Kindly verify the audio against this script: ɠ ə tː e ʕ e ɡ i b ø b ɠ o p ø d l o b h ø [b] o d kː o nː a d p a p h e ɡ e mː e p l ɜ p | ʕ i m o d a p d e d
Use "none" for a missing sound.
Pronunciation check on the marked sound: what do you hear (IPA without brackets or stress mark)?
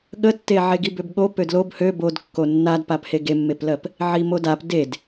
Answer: b